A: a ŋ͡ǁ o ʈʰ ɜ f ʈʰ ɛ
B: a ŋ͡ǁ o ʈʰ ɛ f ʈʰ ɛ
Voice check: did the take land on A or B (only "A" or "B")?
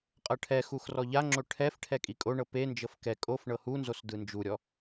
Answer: B